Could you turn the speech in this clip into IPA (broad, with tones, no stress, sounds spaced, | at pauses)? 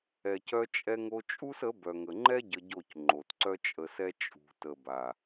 ɛ˨ c œ˧ t͡ʃʼ ɛ˧ ŋ o˧ t͡ʃʼ u˦ s ə˨˦ b œ˨ ŋ ə˨ ŋ͡ǃ ɛ˦ ɟ ə˧ ɟ o˦˨ c ŋ͡ǃ o˨ t ǀ œ˦ t͡ʃʼ ə˧ s ɛ˦ t͡ʃʼ ṳ˨ t ə˨ b a˨